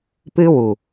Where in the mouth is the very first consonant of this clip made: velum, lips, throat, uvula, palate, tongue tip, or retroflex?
lips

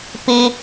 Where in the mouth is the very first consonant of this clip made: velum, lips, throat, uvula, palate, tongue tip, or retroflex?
lips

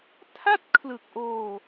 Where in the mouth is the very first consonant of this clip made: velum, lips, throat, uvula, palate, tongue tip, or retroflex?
tongue tip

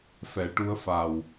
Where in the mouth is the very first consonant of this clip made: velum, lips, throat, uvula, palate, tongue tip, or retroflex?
lips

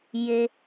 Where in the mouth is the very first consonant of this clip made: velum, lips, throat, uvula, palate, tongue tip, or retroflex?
palate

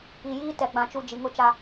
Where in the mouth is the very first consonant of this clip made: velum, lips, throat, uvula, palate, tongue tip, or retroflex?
palate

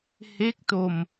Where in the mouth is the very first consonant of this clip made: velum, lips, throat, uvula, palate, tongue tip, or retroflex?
throat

